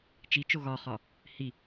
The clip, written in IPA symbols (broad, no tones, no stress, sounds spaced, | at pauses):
t͡ʃ i t͡ʃ o ɣ ɒ χ ɒ | h i